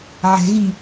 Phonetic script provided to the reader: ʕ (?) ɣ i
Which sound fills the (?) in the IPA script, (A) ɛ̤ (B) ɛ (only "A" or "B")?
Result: A